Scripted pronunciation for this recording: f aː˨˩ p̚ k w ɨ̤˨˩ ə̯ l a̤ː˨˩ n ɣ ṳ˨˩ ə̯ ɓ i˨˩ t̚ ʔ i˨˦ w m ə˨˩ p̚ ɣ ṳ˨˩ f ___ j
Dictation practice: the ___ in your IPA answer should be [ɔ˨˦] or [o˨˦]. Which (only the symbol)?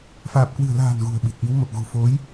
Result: o˨˦